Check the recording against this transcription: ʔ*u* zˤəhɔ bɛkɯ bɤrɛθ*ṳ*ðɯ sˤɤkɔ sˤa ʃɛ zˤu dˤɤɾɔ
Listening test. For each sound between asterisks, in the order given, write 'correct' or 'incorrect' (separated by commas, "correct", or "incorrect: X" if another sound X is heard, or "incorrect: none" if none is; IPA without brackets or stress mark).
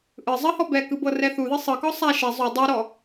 incorrect: ɯ, incorrect: u